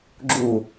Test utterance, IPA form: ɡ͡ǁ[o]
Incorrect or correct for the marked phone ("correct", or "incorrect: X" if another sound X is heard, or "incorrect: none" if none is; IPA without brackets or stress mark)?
incorrect: u